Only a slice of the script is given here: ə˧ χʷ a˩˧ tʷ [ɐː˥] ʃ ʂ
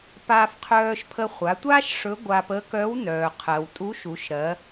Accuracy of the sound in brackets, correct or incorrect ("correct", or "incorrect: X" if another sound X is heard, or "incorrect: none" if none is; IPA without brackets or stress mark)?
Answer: incorrect: aː˥